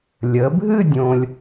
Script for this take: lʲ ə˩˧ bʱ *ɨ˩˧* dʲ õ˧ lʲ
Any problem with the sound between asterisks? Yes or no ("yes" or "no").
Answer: yes